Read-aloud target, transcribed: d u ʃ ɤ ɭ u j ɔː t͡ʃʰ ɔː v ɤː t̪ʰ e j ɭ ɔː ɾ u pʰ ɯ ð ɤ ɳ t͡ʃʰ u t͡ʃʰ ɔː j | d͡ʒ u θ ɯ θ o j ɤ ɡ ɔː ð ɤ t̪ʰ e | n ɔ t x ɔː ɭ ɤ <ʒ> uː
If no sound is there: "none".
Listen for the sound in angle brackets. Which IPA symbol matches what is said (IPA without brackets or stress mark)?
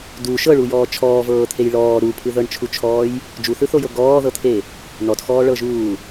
ʒ